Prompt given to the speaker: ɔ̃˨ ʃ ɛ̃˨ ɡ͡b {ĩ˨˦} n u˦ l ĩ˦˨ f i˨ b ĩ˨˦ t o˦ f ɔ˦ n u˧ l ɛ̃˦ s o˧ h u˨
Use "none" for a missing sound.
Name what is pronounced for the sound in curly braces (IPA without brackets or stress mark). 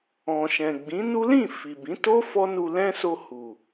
ĩ˨˦